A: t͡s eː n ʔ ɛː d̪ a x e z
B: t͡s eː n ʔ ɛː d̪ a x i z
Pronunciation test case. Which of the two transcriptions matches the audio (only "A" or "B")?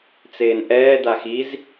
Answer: B